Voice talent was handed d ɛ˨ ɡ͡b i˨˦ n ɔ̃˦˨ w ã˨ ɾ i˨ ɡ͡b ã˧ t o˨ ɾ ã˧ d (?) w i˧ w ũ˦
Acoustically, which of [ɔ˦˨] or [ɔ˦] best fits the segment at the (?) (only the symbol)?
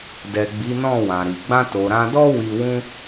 ɔ˦